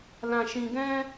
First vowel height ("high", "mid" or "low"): low